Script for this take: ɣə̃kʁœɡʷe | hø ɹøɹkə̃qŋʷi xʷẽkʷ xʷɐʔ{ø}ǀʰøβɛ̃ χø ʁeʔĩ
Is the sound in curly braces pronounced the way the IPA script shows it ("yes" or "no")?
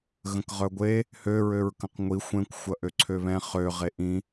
yes